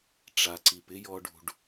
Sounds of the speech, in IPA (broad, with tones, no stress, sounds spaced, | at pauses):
ʈ͡ʂ a˨ ǀ i˨ p ɪ˦ j ɔ˧ ɖ ṳ˨ ɖ